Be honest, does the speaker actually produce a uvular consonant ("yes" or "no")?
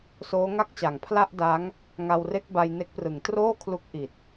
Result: no